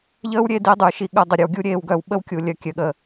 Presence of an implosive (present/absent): present